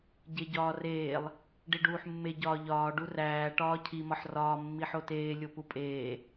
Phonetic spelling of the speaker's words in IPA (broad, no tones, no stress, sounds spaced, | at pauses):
ɟ e ɟ ɒː r eː lˠ | ɖ i ɖ uː ħ mː e ɟ ɒː ʎ ɒː ɖ u r æː ʈ ɒː cʰ i m ɒ ħ r ɒː mː i ħ o t eː lʲ o p u pʼ eː